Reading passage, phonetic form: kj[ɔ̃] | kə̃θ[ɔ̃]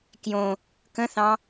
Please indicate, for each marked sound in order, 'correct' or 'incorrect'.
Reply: incorrect: õ, incorrect: ɑ̃

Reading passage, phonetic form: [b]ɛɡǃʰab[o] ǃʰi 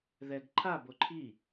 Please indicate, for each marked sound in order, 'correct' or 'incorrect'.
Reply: incorrect: ð, correct

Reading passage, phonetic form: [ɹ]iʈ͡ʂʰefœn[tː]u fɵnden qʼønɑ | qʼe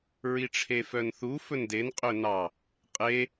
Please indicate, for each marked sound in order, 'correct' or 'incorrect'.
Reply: correct, incorrect: θ

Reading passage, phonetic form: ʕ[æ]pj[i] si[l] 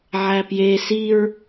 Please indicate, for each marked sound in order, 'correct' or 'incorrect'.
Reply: correct, incorrect: e, incorrect: ɹ

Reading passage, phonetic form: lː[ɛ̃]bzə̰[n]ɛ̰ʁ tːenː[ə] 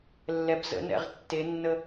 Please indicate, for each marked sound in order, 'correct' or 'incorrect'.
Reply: incorrect: ɛ, correct, correct

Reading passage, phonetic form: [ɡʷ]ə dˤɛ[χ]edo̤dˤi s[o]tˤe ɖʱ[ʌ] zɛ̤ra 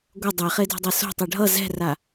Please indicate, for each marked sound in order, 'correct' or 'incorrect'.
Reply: correct, correct, incorrect: o̤, correct

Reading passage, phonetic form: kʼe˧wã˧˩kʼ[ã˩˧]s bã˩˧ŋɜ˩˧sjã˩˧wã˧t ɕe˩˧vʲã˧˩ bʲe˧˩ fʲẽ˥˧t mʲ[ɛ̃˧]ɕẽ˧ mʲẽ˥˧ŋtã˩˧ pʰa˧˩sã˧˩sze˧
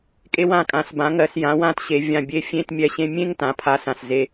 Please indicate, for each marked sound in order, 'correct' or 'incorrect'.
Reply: correct, incorrect: ɛ˧

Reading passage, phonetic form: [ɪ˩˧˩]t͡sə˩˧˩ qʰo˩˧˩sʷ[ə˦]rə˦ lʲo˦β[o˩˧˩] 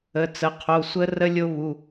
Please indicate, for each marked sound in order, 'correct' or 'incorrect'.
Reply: incorrect: ə˩˧˩, correct, incorrect: u˩˧˩

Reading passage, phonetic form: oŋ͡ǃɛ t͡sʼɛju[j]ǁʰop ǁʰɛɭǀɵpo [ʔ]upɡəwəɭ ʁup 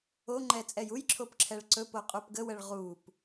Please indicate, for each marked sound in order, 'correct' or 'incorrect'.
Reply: correct, incorrect: qʼ

